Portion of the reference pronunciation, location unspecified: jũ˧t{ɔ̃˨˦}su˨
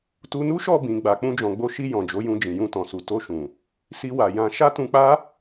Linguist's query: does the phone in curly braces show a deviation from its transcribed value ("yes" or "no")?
yes